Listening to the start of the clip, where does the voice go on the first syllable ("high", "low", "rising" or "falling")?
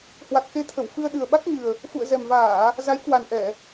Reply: low